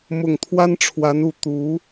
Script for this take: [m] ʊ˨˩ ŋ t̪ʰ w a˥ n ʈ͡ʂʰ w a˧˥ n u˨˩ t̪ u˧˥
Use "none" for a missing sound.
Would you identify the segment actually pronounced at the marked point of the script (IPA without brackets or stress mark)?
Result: m